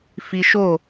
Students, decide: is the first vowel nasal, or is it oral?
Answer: oral